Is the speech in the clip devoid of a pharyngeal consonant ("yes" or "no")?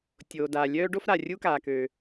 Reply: yes